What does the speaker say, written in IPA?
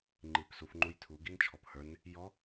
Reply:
ŋ͡ǃ i p s u f ŋ͡ǃ u j tʰ u ɡ i n t͡ʃʰ ɔ p h ə˞ n | j ɔ

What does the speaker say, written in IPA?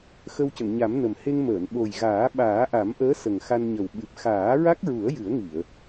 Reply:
x ə˧ w c ə˨˩˨ ŋ ɲ a˨˩˦ m n ə˨˩ m h e˧ ŋ m əː˨˩˨ n ɓ o˨˩ j ɣ aː˨˩˦ ɓ aː˨˩˦ ʔ a˨˩˦ m ʔ əː˧˥ s ə˨˩ ŋ x a˧ n ɲ ə˨˩ w ɓ ɨ˨˩ p̚ x aː˨˩˦ ɹ a˦˥ k̚ ɹ u˨˩˦ ə̯ j ɨ˨˩˦ ə̯ ŋ i˨˩˨ ə̯

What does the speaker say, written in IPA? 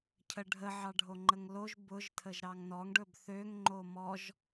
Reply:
cʰ ə ɖʱ ə ʕ ɑ ɖʱ o ŋ͡ǃ ə ŋ l o ʒ b ʊ ʒ tʰ ə ʒ ɾ ɑ ŋ n ɔ ŋ ɖ ɵ b θ ø ŋ ŋ͡ǃ o m ɔ ʒ

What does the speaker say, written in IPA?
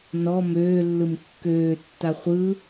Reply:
n ɔ m øː lː ɯ m kː øː tː a χʷ ɯ

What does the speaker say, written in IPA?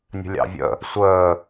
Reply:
nʲ ə̤ lʲ ɑ̰ vʲ ə̰ | sʷ əː

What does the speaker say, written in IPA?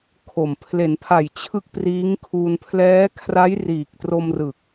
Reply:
kʰ o˨˩ m pʰ l e˩˦ n pʰ a˨˩ j t͡ɕʰ ɯ˥˩ k̚ p r iː˦˥ ŋ kʰ uː˧ n pʰ l ɛː˦˥ kʰ r a˦˥ j r iː˨˩ k̚ t r o˧ m r ɯ˨˩ k̚

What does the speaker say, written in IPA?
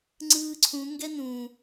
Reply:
ŋ͡ǀ ɯː ǀʰ ũ ŋ ɡ ɛ n ũ

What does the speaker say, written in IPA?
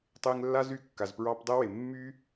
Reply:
tˤ e˧ ŋ lː a˦ z y˧ kː a˨ z p ɹ ɑ˧ p dˤ ɛ˦ w e˨ mː y˦

